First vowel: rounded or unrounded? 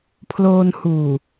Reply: rounded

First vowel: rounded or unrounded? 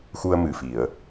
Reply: rounded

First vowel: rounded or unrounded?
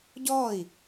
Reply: rounded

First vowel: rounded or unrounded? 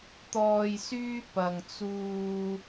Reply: rounded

